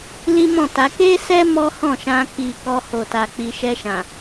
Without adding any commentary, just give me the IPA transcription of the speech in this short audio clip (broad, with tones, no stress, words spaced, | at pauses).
li˦mɔ̃˦˨ta˨˦ ke˦sɛ˦ mɔ˦hɔ̃˦˨ʃã˧ki˨ kɔ˧ho˨ta˨ k͡pi˨ʃɛ˧ʃã˨